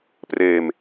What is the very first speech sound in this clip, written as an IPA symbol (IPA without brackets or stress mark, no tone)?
p